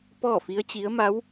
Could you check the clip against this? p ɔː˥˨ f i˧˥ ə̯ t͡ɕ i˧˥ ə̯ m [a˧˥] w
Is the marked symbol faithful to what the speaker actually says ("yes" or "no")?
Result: yes